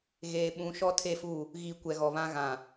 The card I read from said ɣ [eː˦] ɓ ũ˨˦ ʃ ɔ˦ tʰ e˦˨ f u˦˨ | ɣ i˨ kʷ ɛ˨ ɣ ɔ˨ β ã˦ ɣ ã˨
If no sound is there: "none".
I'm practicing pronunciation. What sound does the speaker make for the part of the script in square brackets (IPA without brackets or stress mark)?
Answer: eː˨